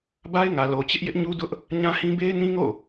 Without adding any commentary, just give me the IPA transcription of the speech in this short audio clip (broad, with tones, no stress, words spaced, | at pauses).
ba˦ɪ̯ŋä˨ lo˨t͡ɕɪ˦ʔ jɪ˦ʔɲu˦dʊ˦ʔ | ɲã˦hĩ˦ be˦ɪ̯nĩ˦ŋo̰˦˨